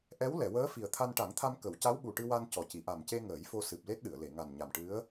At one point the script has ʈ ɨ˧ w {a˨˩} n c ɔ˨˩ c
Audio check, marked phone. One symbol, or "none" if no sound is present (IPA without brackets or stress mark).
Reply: a˧